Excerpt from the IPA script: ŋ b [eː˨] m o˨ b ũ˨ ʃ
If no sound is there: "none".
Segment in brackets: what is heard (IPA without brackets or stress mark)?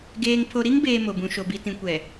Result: eː˨